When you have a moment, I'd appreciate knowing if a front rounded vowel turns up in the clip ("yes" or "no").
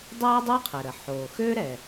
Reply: yes